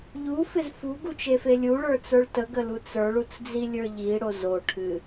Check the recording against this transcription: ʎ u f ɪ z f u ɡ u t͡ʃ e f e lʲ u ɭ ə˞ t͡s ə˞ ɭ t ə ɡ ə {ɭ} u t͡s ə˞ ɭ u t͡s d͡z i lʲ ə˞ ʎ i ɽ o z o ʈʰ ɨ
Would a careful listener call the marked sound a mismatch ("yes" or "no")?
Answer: yes